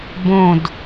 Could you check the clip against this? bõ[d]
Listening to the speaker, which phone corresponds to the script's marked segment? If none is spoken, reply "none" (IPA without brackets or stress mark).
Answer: d